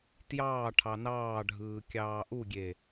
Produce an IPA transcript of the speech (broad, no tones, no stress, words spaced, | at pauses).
tjɑː ʈʰɑnɑːɖʱɯː kʲɑːʔuɡʲe